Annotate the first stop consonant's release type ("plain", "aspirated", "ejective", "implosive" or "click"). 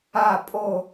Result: ejective